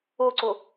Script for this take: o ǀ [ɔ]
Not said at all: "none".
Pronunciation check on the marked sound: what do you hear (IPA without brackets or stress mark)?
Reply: o